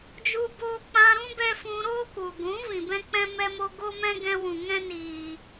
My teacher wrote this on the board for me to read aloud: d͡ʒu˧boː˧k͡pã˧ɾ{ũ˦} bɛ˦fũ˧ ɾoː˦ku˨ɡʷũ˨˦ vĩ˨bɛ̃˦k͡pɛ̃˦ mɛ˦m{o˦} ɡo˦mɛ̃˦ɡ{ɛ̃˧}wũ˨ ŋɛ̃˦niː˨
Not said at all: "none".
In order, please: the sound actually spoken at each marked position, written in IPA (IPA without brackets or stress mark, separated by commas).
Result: ũ˦, o˦, ɛ̃˧